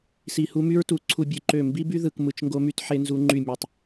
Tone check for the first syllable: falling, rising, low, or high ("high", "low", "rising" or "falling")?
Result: low